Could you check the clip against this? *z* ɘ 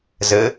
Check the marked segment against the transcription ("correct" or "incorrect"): correct